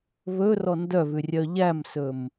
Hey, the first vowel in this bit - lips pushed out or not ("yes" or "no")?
yes